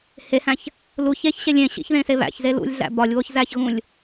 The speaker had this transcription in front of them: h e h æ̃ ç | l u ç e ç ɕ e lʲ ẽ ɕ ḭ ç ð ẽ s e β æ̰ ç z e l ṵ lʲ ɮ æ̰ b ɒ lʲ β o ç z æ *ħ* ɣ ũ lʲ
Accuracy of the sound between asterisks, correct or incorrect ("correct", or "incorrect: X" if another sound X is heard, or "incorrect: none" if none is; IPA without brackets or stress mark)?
incorrect: ç